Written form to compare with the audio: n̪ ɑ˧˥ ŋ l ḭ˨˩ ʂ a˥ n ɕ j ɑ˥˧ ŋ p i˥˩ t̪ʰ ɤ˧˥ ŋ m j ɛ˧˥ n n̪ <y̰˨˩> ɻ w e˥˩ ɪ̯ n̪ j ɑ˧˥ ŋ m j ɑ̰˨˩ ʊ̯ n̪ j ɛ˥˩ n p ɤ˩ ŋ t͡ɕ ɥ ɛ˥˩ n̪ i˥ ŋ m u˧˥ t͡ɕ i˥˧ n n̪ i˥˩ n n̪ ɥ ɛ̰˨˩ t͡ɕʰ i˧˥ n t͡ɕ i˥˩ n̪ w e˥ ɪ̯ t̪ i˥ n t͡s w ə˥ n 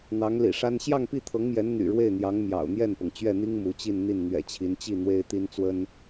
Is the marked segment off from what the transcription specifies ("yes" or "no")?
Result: no